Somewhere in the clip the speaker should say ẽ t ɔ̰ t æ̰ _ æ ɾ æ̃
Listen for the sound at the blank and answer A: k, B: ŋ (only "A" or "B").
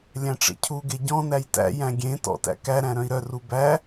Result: A